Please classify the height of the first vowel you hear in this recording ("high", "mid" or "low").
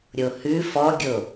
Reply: mid